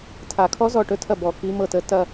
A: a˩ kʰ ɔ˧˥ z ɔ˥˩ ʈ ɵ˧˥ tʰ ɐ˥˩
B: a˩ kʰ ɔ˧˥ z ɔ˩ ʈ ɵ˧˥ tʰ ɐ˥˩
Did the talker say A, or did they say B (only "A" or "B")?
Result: A